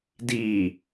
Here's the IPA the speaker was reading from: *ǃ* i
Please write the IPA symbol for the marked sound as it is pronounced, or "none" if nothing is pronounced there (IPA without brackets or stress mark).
d